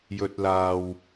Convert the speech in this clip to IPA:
j ɵ˨ t̚ l aː˨ w

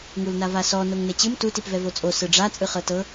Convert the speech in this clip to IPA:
ŋ u l n a v a s ɔ n o ŋ n e t͡ɕ ɯ m t u t i p v ɛ v o t͡sʼ o s ɯ ɖ͡ʐ a t͡sʼ ɯ χ ɤ t ɤ

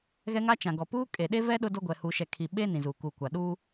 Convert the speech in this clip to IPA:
ɣ ɛ˦ ŋ a˦ t͡ʃ ã˨ ɡ ɔ˨ p uː˦ kʼ e˨ ɗ e˦ v ɛ˦ ɗ ʊ˦ d o˦ ɡʷ ɛ˨ h uː˨ ʃ ɛ˨ kʰ i˨ ɓ e˦ n ĩ˨ z uː˨ k uː˨ kʷ a˨ ɗ uː˦

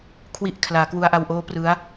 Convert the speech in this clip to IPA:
kʰ w i˨˩ ʔ kʰ l aː˩˦ k w u˧ a̯ ʔ a˧ w ʔ oː˦˥ p r ɯ˦˥ a̯

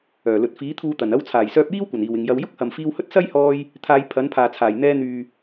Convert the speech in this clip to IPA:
œː˨˩ l ɵ˨ t̚ f iː˨˥ t̪ʰ uː˧ t̪ ɐ˨˩ n ɐ˧ w t͡sʰ aː˨˩ j s œː˧ p̚ j iː˥ w kʷ ɐ˨˩ n iː˨˩ w ɪ˨ ŋ j ɐ˧ w j ʊ˥ k̚ h ɐ˨ m f iː˧ w h ɵ˥ t̚ s ɐ˥ j h ɔː˧ j | t̪ʰ aː˨˧ j pʰ ɐ˨˥ n pʰ aː˨ t͡sʰ aː˨˩ j n̪ ɛː˧ n̪ yː˨

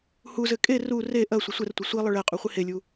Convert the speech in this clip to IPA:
h u z ɘ kʼ e r u r e ʔ ɐ sʷ ɐ sʷ ɛ r tʷ ɐ sʷ i lˠ ɘ ɭ ɛ qʼ u χʷ i h e lʲ u

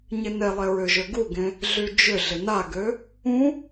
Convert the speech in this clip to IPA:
ɲ ɪ n e lˠ e ɹ ʏ ʒ ø ɡ u ɡ ẽ | ɮ y d͡ʒ ʏ ɮ ɪ n a ɡ ø | ũ

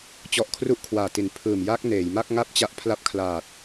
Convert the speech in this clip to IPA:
t͡ɕ ɔ˦˥ ʔ kʰ r u˥˩ ʔ kʰ w aː˨˩ t i˩˦ n pʰ ɯː˨˩ m j a˦˥ k̚ n eː˩˦ j m a˥˩ k̚ ŋ a˥˩ p̚ t͡ɕ a˦˥ ʔ pʰ l a˦˥ p̚ kʰ l aː˨˩ t̚

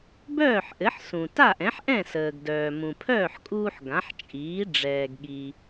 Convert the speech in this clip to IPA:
b œː˥˩ ħ ʔ ɘ˩˥ ħ s ũ˩ t a˥˩ ʔ ɛ̃˩˥ ħ ʔ ɛ̃˥˩ s əː˩ ɡ d œː˩ m ũ˩ pʰ œː˥˩ ħ kʼ uː˧ ħ ɡ ã˩˥ ħ t͡ʃʼ iː˩˥ ɖ͡ʐ ɛː˩ ɡ ɠ i˩

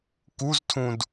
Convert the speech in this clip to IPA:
k u z tʰ ũ d

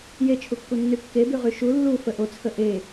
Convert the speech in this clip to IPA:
j e t͡ʃʰ u kː u nː y kː e b y ʁ y ʃ u lː u f ə ʔ o t͡sʰ ə ʔ e

